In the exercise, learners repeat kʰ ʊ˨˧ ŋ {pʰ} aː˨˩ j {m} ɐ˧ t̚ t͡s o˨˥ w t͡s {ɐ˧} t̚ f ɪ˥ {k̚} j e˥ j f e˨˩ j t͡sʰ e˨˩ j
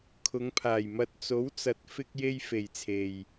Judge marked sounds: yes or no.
yes, yes, no, yes

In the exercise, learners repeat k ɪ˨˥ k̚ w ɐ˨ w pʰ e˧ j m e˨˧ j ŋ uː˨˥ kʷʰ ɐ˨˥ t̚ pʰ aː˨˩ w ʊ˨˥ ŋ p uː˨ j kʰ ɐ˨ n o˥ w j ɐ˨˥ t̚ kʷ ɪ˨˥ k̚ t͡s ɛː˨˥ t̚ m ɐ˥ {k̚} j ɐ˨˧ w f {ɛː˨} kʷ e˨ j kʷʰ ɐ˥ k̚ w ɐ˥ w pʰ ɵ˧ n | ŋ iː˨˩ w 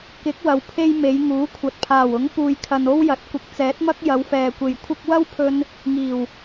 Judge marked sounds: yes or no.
yes, yes

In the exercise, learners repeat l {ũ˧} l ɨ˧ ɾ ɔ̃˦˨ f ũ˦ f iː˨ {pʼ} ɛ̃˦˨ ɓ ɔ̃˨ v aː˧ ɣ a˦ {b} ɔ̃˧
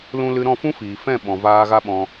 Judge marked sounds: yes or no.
yes, no, no

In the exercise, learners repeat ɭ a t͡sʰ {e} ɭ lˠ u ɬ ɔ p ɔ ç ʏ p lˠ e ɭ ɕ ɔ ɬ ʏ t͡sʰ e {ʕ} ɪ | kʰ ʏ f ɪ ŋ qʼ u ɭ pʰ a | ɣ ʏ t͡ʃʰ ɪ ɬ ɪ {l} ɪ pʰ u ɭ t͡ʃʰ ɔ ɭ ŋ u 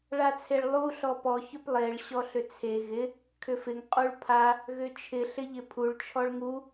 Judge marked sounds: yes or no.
yes, no, no

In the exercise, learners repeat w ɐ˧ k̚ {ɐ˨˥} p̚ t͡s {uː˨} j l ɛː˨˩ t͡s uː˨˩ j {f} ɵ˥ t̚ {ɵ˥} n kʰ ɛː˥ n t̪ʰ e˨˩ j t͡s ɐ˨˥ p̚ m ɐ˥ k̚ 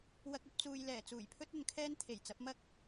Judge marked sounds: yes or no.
no, yes, no, no

